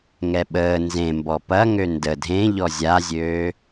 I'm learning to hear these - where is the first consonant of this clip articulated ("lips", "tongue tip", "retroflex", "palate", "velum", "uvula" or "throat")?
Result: velum